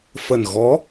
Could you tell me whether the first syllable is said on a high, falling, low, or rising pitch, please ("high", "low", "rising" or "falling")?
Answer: low